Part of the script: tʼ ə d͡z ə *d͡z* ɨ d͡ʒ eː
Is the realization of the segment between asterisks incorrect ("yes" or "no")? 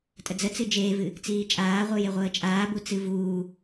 yes